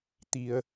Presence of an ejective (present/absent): absent